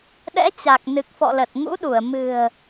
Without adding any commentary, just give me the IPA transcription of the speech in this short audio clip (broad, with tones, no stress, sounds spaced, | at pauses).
ɗ ɛ̰˧˥ t͡ɕ a˨˩ k̚ n ɨ˨˩ k̚ f ɔ̰˧˨ l ə˨˩ t̚ ŋ ṵ˧˥ ɗ u˧˩ ə̯ m ɨ̤˨˩ ə̯